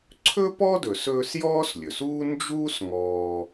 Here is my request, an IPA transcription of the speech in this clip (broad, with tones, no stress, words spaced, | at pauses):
ǀʰɵ˥pɔ˥dɵ˩s ɵː˦sjɔː˥slʲɵ˩suː˥ nd͡ʒuː˥sŋɔː˨